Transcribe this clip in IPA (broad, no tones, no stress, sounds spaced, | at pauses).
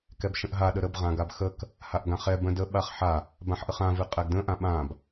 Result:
k ɛ b ʃ ə̃ ʔ ɦ a ɗ ə ɾ ə b ʁ ã ɡ a b x ə k | h a ʔ ɡ ã χ ɛ b ə̃ d ə ɓ a χ ħ a | b ã ħ ʔ ə χ ã v ɨ qʼ ɛ ɡ d ə̃ ʔ ã ɓ ã b